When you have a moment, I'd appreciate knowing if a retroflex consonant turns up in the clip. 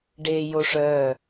yes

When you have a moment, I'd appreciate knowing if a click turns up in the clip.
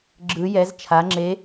yes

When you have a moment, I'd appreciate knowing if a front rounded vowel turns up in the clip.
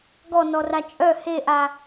yes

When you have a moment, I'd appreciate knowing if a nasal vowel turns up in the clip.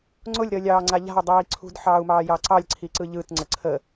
no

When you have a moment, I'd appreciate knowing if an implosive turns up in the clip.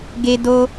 no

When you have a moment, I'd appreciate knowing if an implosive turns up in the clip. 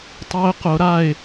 no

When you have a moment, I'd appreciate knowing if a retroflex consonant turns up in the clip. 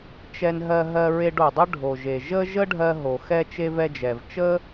yes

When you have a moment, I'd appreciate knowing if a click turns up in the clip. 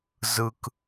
no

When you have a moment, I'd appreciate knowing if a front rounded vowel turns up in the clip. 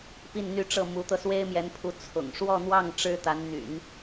yes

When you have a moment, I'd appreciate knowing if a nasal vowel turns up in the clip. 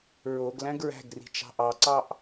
yes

